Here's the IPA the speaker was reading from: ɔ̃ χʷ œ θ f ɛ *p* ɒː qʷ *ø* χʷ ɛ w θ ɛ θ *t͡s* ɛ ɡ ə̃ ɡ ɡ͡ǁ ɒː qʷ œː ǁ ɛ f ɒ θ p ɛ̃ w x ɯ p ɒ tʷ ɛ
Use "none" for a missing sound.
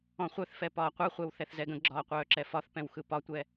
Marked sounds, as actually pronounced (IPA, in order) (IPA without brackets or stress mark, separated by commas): p, œ, z